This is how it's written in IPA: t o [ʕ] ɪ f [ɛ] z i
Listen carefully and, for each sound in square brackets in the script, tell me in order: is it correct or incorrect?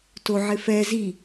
correct, correct

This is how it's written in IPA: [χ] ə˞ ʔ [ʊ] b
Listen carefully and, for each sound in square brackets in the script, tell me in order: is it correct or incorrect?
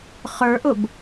correct, correct

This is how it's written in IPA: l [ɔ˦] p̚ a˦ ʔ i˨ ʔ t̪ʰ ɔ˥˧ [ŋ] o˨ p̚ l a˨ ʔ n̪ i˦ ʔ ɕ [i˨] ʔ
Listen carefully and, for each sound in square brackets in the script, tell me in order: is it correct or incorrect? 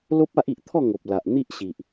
incorrect, correct, correct

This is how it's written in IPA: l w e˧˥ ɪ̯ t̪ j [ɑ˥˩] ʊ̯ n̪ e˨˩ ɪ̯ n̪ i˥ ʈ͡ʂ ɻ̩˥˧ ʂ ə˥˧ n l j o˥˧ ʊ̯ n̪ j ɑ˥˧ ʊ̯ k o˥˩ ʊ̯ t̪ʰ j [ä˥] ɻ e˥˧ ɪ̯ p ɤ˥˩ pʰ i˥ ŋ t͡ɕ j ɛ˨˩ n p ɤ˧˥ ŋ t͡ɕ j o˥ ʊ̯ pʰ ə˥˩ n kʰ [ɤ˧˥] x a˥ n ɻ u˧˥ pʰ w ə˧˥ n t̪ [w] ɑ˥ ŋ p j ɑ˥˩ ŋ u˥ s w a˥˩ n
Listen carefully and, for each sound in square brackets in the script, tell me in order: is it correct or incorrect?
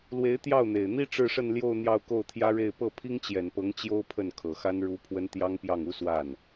correct, correct, incorrect, incorrect

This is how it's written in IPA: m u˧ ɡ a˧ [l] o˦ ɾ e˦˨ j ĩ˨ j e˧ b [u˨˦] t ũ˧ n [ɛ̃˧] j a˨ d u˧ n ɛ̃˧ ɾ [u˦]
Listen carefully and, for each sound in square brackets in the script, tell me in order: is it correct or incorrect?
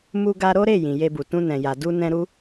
incorrect, incorrect, incorrect, correct

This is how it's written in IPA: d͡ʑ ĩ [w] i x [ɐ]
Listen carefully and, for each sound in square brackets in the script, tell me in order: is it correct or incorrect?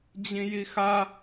incorrect, incorrect

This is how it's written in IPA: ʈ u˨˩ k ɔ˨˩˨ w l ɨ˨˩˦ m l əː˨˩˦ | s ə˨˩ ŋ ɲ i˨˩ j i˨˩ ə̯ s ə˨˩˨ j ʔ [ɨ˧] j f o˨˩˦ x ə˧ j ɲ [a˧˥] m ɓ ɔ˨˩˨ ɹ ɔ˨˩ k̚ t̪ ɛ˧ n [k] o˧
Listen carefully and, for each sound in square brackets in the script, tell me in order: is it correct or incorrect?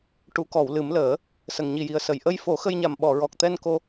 incorrect, incorrect, correct

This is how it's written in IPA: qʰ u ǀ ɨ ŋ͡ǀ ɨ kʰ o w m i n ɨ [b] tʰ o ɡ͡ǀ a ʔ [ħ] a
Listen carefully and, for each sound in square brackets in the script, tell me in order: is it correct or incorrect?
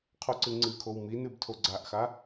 correct, incorrect

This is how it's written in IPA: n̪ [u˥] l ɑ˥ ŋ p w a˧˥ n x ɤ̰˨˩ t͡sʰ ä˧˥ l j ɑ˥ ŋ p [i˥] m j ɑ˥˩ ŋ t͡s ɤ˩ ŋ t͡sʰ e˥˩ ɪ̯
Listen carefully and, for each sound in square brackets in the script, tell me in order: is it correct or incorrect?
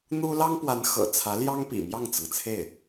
correct, incorrect

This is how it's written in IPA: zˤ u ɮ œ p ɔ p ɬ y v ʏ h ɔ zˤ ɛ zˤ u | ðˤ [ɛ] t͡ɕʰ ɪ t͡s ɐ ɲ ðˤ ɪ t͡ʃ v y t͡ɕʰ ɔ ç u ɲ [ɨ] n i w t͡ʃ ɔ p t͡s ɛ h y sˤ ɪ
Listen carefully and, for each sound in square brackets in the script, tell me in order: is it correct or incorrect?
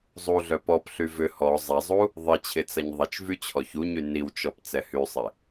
incorrect, incorrect

